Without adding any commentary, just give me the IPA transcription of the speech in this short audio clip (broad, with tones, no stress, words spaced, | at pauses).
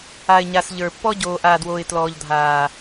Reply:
a˨ɪ̯ɲa˨s ʎə˞˨ pːɔ˦ɟoː˨ʔaː˨dwoː˨ɪ̯ tlɔː˨ʎdʱaː˨